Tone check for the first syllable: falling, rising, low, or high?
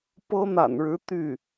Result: high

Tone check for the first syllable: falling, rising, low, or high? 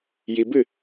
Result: low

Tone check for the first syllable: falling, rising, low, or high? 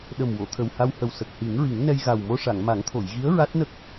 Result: low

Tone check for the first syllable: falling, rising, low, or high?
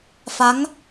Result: rising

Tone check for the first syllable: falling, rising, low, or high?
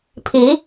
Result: rising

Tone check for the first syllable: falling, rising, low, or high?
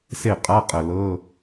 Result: falling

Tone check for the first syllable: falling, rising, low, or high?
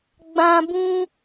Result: high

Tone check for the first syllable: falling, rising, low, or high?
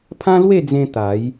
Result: high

